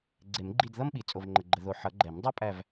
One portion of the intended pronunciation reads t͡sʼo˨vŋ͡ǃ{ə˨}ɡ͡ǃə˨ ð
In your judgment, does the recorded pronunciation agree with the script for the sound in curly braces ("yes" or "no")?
yes